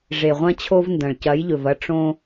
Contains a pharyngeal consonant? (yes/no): no